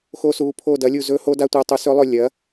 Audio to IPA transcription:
xo˧˥su˩˥ pʰo˦˨ dɐ˩˥lʲu˦˨ zɵ˧˥ho˧˥da˧˥tʷɐ˩˥ tˤu˩˥sɵ˧˥lˠɵ˦˨ lʲɐ˩˥

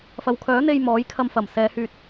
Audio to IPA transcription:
fɐ˨wkʰœː˨˥n̪e˧j mɔː˨˥jkʰɐ˧mfɐ˨˩msɛː˨˧ hyː˧t̚

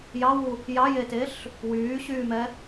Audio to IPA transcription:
jɑwu | jɑjeteɬ | wyːɕyːmɛ

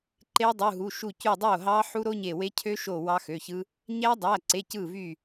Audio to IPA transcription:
ǃe˦˥dˤu˩˧˩ɦu˩˧˩ ʃu˧˩cy˧˩dˤo˥˩ɦɑ˦˥ ħu˦˥ɾo˦˥ɲe˧˩we˦˥ cʰø˦˥ʃo˧˩ wɑ˦˥xø˩˧˩çɯ˦˥ | ɲæ˦˥dˤæ˩˧˩ǀe˩˧˩ cɯ˥˩vy˥˩

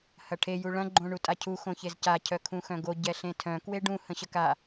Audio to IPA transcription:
hɐʈʰe juɭɐ̃ ɡ͡ǃõɳutʼacʰu xõçezca cʰœkʰũxœ̃ɡo ɟɛɬẽtʰœ̃ kweɖũ hə̃ɕəka

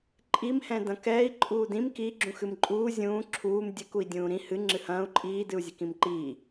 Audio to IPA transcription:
ǃʼimhɛ̃ dɐ̃kɛːi̯ ǃʼuːdĩm ki ɡ͡ǁũxɨmǃʼuː zʲũː ǁʰuːm dʲɘkui̯ dʲũːɾĩ hɨ ŋ͡ǁɨhɐ̃ːu̯ ǃʼiːdɨu̯zʲɛk ĩmǃiː

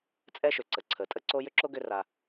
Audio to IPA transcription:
t͡sʼɛ˦ʃʏ˩ǀə˩ǀʰə˩ tʼə˥ǀo˥ jʏ˥ǁo˥ ɡʏ˦ra˨

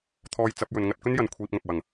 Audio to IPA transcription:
t̪ʰɔː˧jt͡sɐ˨˥p̚jɵ˨n ŋɐ˧t̚kɵ˥njɐ˨n kʷʰiː˧p̚ŋɐ˨p̚wɐ˨˩ŋ

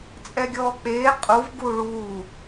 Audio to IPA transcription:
t͡sʼɛɡʲɔːk͡peː qʼuvɡuː ɭuː

